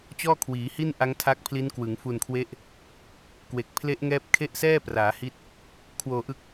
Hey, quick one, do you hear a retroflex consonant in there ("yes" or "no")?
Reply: no